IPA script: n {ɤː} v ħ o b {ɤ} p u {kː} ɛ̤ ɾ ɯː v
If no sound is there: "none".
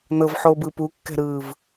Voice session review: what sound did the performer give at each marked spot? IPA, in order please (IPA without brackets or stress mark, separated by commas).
ɤ, ɯ, kː